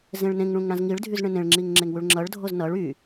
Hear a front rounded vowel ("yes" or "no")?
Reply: yes